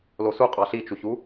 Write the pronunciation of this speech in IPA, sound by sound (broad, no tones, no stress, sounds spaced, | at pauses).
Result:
l o s u qʼ ɑ ɬ i t͡ʃ u ç u